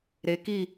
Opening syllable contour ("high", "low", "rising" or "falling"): rising